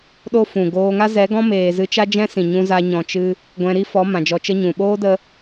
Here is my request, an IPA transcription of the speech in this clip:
ɗ o˦ f ũ˨ ɡ oː˧ ŋ a˦ z ɛ˨˦ ɡ ɔ̃˦ m eː˨ z ɨ˧ t͡ʃ a˦ d͡ʒ ɛ̃˦ s ĩ˨ ɲ ũ˧ z a˧ ɲ ɔ̃˨ t͡ʃ ɨ˦ | ɡʷ ɛ̃˧ ɾ i˦ f ɔ˨˦ m ã˨ d͡ʒ ɔ˧ t͡ʃ ə˦ ɲ ũ˨ ɓ oː˦ d ə˦

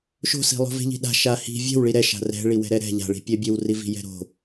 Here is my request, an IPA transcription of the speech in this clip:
ʃ o̤ s i̤ lˠ o̤ v e̤ ʎ i̤ ɗ a̤ ʃ a h i̤ vʲ ɛ̤ w ɭ i ɾ ɛ ʃ a̤ r ɛ̤ ɭ i w ɛ̤ ɾ ɛ ɾ ɛ̤ ʎ a̤ ɭ i̤ pʲ ɛ bʲ e w r i v i̤ j ɛ̤ ɾ o̤

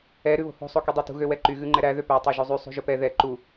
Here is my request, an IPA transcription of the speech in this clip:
ɛ ɾ ʉ β o̤ h o̤ sˤ o k y dˤ æ t ṳ ɣ ø w ɛ ǃ y ɣ ʉ ŋ͡ǃ ɛ ɾ æ ð ø p æ tˤ ø ʒ u zˤ y sˤ ṳ ʒ ɵ p ɛ ð ɛ ǃ u

